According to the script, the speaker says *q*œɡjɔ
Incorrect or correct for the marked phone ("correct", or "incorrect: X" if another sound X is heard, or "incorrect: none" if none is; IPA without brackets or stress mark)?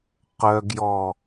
correct